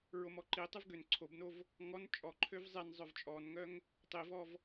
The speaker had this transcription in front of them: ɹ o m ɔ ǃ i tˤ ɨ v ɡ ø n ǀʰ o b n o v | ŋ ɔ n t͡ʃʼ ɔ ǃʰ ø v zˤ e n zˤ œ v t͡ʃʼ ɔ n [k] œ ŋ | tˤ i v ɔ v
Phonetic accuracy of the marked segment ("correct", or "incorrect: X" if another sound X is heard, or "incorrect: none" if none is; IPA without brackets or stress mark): incorrect: ŋ